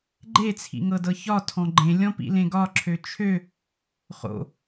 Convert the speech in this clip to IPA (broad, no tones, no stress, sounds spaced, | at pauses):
ɡ͡ǃ e t͡sʰ ḭ ŋ ɤ d ɤ ç ɒ tʰ ɔ̃ ɡ͡ǃ ẽ lʲ ɔ̃ p ḭ l ẽ ɡ ɒ ǁʰ ø t͡ʃʰ ø | χ o̰